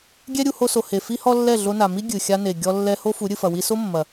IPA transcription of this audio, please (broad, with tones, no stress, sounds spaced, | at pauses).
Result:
ɡʲ ɛ˦ ɾʲ u˧ h o˧ s o˨ h e˨ f i˦ h ɔ˦ lː ɛ˦˨ ɮ o˧ n a˨ m i˦ ɡʲ ɨ˨ xʲ a˧ n e˨ ɡʲ ɔ˧ lː ɛ˧ h o˦ f u˨˦ ɾʲ ɨ˨ f ɐ˨ w i˧ s o˦ mː ɐ˨